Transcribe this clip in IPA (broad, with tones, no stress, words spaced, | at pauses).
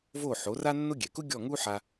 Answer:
vo˥˩ħo˩˥ ra˥nːʊ˥ ɡʲɛ˩kʊ˥ ɡʲɔ˥˩ŋu˥ ħa˧